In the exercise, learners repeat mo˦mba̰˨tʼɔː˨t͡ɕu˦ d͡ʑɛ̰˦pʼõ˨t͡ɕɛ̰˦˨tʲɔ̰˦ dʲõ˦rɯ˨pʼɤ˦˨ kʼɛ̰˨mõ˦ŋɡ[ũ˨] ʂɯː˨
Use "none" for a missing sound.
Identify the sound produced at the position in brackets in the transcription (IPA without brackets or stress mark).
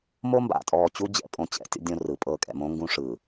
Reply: ũ˦